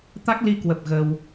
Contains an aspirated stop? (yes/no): no